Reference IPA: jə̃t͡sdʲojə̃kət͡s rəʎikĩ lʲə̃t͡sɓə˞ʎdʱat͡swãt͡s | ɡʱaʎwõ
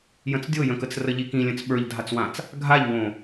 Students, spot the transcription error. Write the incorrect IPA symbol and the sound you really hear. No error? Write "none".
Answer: none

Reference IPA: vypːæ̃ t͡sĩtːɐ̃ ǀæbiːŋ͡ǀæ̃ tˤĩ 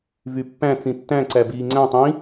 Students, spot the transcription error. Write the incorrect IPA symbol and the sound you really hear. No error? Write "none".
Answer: ɐ̃ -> æ̃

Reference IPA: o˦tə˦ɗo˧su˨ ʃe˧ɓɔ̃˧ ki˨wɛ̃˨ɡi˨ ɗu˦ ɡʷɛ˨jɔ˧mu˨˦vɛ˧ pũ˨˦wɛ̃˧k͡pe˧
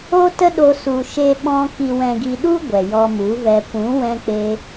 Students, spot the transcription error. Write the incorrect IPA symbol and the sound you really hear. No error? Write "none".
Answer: none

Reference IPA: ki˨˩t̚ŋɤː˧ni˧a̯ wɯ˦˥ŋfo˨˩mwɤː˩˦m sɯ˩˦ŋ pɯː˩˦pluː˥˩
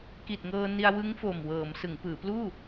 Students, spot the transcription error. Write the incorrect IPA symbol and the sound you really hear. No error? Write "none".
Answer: none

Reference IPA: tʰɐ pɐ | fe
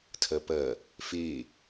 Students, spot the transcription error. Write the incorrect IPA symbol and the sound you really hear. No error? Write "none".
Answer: none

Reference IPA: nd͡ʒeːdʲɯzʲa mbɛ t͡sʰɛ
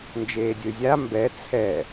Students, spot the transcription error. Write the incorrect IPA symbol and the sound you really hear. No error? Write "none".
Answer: none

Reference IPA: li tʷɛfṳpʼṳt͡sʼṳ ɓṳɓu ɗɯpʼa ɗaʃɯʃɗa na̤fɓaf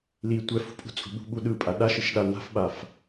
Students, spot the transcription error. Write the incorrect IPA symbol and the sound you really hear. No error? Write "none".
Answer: none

